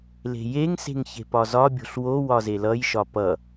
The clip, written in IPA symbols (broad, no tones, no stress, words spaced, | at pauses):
le̤jeŋse̤ŋ çe̤pɒzɒbʲo̤ɬ wo wɒzelʌjʃɒ pʌ